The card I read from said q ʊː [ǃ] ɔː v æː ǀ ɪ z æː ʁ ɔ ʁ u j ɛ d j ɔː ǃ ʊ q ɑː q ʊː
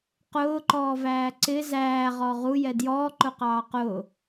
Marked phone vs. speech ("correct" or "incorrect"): correct